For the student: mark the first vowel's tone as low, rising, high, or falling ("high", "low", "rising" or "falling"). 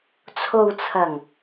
low